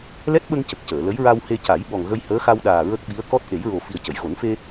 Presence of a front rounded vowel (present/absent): absent